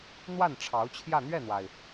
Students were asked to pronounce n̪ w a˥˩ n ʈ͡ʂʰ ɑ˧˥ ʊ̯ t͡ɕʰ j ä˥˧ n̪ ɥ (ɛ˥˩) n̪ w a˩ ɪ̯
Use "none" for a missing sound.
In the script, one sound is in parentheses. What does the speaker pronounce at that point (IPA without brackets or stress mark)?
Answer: ɛ˥˩